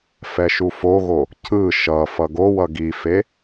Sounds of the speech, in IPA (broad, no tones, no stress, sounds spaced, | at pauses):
f ɛ ʃ u f o ɣ o | cʰ ɯ ʃ ʌ f ʌ ɡ o w ʌ ɡ i f e